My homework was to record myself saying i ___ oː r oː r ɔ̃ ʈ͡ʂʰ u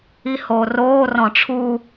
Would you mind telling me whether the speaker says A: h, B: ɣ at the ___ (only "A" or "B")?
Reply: A